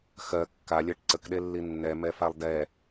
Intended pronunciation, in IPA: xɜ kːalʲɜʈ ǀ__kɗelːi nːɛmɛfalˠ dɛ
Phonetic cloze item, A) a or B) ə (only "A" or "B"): B